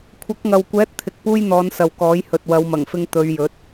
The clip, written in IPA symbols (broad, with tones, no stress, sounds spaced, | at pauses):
kʷʰ ɐ˨˥ k̚ ŋ ɐ˨ w kʷ ɛː˨˥ t̚ t̪ʰ ɪ˨˥ k̚ p uː˥ j n̪ ɔː˨˧ n s ɐ˨ w k ɔː˨˥ j h ɵ˨ t̚ w ɐ˨˧ w m ɐ˨˩ ŋ f ɪ˧ ŋ t̪ ɵ˨˧ ɥ j ɵ˨˥ t̚